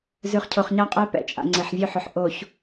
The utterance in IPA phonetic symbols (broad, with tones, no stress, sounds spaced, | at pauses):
z ʉ˨ χ cʰ o˨ χ ɲ a˦ qʼ ɛ˦ p ɛ̰˨ t͡ʃʼ a̰˨ ŋ͡ǀ e˨ ħ vʲ ɵ˦ ħ ɵ˨ ħ ʔ o˨ ç